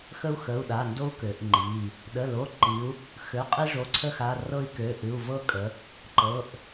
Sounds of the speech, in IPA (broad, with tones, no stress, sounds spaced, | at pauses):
x ə˦ u̯ x ə˩˧˩ u̯ ɗ a˩˧˩ n d o˦ u̯ k ø˩˧ ʔ ŋ͡ǃ i˩˧˩ | ɗ ə˩˧˩ l o˩˧˩ ǃ i˩˧ u̯ | x ø˩˧˩ qʼ i˦ ʐ o˩˧˩ ǀʰ ə˦ x a˩˧˩ r ɤ˦ i̯ k ø˩˧˩ ʔ ɨ˩˧˩ u̯ v ɤ˦ kʼ ə˩˧ | ǃ ɤ˩˧˩ ʔ